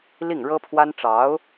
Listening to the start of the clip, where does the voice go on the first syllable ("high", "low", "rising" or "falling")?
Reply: falling